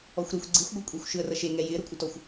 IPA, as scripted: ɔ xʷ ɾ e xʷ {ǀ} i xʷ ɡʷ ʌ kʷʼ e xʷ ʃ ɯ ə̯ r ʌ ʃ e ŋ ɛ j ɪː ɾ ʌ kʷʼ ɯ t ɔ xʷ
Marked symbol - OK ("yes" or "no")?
no